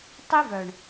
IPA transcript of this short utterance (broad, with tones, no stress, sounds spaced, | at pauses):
tˤ i˦ v œ˨ ɳ